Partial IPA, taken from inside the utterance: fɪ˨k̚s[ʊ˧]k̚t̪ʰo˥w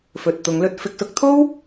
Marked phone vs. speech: incorrect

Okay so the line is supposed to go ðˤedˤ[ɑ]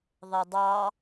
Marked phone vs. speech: correct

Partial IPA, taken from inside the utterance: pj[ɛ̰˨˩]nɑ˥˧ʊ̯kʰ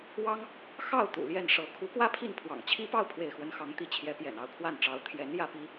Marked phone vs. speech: correct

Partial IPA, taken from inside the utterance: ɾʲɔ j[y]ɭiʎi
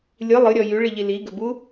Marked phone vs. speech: correct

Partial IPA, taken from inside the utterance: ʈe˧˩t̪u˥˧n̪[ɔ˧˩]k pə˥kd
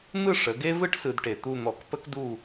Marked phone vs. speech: correct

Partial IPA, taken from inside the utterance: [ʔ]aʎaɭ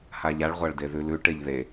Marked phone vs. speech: incorrect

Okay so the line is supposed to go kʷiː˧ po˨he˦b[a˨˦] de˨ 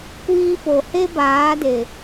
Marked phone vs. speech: incorrect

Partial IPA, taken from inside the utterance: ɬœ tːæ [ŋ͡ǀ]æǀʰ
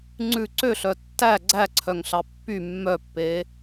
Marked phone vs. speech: incorrect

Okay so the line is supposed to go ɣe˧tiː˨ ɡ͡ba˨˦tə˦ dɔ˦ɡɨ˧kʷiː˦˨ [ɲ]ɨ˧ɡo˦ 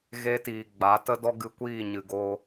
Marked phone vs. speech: correct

